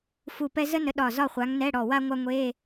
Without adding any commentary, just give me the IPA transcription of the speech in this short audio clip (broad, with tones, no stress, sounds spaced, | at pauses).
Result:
f u˧˩ p ɛ˥ z ə˥ n ə˨˦ ɗ ɒ˧˩ z ɒ˥˨ χʷ a˨˦ ŋ n ɛ˧˥˧ ɽ ɔ˧˩ w a˥ ŋʷ a˥ ŋʷ e˧˥˧